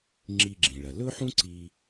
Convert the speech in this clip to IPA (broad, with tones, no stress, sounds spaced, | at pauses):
ŋ͡ǁ i˧ ɡ͡ǁ ĩ˩ ɭ ɐ˩ l ɵ˥ ħ ũ˥ ǀ i˧